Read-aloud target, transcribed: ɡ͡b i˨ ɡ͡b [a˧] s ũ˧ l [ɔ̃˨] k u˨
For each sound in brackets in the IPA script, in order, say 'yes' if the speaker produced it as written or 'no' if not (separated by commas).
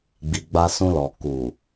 yes, no